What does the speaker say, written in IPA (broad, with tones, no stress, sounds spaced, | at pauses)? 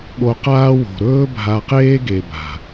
ɠ o˧ q aː˦ w o̤˨ ɾ ɵː˦ bʱ a˧ q eː˦ ɡ e˨ b a̤˨